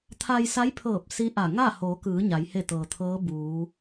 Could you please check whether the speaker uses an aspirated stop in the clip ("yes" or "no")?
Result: yes